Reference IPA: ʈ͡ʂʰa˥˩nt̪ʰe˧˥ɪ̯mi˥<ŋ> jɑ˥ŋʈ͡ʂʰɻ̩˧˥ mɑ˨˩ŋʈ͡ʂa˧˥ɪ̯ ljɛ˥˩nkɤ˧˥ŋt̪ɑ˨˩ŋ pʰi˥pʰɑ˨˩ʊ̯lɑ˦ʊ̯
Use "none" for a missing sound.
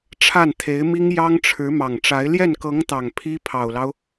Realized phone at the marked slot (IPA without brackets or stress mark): ŋ